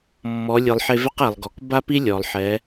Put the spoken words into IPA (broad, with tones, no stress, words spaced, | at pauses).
mːɔ˩˧ lʲɨ˩lˠħe˧vɛ˥q e˩lˠɡɔ˩k ba˥pi˥lʲɔ˩lˠ ħɛ˩˧